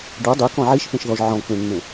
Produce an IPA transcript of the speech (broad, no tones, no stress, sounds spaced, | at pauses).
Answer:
ɖ ɤ dˤ e k ɔ̃ ʕ i ʃ p ẽ ʃ ð ɔ ʒ ʕ ɔ̃ k͡p ẽ ŋ͡m ẽ